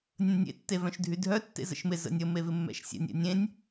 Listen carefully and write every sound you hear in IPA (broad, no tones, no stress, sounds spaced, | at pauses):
nʲ ə̃ nʲ ḛ tː e v œ̃ ʃ dʱ y dʱ œ tː ḛ z ə̰ ʃ m ɪ z ə̰ nʲ ə m e v ɪ mː ɛ̰ ʃ sʲ ɛ̰ nʲ ɛ̰ nʲ ẽ nʲ